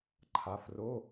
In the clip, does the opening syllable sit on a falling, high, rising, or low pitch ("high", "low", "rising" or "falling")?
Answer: rising